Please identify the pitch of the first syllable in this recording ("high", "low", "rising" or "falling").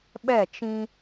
falling